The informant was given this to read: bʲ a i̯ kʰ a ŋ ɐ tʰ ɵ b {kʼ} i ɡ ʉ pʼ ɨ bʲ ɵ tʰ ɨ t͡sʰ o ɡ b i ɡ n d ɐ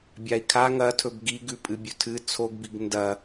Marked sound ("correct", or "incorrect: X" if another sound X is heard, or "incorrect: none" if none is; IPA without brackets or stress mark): incorrect: ɡ